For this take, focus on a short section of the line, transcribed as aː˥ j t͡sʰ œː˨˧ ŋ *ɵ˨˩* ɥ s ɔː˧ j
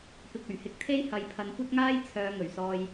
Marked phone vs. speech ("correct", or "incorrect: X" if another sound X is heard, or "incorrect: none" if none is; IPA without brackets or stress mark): correct